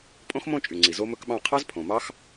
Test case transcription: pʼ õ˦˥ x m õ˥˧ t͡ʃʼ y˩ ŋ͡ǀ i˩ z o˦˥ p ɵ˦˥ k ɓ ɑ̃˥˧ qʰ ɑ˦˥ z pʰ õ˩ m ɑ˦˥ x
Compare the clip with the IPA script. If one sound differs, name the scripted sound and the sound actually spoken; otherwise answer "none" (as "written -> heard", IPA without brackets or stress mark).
p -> m